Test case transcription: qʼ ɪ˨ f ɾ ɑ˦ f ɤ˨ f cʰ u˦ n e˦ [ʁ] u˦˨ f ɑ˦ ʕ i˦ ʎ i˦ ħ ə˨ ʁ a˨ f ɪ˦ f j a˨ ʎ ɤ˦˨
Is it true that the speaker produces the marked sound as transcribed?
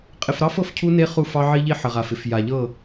no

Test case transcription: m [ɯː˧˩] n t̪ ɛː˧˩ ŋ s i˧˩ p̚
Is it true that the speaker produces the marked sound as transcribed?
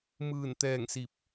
yes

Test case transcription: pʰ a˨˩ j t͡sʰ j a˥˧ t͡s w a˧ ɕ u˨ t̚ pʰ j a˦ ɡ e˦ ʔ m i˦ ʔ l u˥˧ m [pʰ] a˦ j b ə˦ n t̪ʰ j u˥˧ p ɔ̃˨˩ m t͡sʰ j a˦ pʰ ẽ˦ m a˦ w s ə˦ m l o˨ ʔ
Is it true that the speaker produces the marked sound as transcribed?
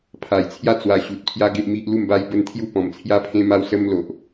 no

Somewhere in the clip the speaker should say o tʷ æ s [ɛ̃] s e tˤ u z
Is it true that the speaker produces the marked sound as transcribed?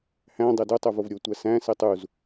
no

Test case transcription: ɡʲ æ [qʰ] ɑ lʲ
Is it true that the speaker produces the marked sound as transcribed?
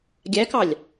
no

